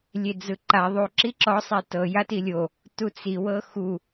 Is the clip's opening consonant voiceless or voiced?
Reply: voiced